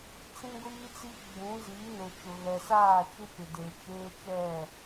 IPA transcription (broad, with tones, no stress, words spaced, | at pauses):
t͡sĩ˦ɡʷiː˦t͡si˦ ɡ͡bũ˨˦ziː˨˦ nʊ˨t͡ʃʊ˨ ɣɛ˨ saː˦˨t͡ʃu˦pɪ˨de˨ t͡ʃeː˦t͡ʃɛ˦˨